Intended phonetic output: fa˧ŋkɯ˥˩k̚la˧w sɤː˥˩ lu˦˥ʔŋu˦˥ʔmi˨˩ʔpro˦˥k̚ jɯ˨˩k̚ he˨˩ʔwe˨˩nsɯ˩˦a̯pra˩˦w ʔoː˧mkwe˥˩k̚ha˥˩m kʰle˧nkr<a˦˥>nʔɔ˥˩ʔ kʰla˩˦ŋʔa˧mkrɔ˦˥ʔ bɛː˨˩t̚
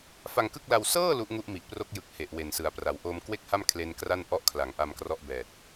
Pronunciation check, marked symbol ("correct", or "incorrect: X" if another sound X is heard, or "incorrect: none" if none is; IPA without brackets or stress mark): incorrect: a˥˩